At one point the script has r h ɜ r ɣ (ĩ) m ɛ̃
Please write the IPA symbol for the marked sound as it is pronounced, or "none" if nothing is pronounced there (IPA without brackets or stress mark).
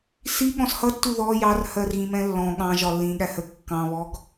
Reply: ĩ